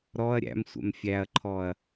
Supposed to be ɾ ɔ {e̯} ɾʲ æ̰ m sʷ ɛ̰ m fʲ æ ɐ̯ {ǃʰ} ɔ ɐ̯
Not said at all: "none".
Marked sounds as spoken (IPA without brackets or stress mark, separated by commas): ɐ̯, ǃʰ